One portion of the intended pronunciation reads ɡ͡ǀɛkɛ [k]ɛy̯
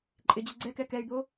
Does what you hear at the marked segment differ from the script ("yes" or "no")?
no